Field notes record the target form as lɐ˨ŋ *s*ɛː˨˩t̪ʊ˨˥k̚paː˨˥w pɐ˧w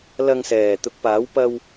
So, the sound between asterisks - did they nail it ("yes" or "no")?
yes